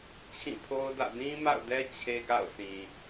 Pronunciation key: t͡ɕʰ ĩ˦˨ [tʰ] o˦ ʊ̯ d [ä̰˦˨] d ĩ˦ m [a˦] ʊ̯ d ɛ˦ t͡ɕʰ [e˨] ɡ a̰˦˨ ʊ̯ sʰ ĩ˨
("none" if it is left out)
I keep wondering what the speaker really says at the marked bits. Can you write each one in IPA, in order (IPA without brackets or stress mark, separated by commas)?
pʰ, ä̰˦˨, a̰˦˨, e˦